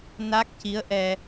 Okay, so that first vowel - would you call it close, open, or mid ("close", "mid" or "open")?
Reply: open